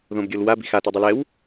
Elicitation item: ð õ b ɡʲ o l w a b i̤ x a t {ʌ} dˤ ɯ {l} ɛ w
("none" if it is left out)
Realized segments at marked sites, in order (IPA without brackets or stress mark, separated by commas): ɔ, l